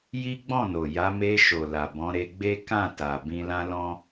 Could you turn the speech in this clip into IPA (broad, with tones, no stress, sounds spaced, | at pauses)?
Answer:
j i˦ ɡ͡b ɔ̃˦˨ n o˨ j a˨˦ m e˧ ʃ o˨ l a˨ b ɔ̃˨˦ ɾ e˧ ɡ͡b e˦ k ã˦˨ t a˨ b ĩ˧ l ã˦ l ɔ̃˦